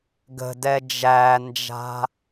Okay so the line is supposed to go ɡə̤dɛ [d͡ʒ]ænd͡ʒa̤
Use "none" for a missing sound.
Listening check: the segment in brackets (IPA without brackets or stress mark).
d͡ʒ